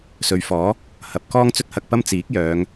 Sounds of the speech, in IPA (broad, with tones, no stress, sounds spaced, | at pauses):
s ɵ˨˧ ɥ f ɔː˨˥ | h ɐ˨˥ p̚ k ɔː˥ ŋ t͡s ɵ˥ t̚ h ɐ˧ k̚ p ɐ˥ m t͡s iː˨˥ k̚ j œː˨˧ ŋ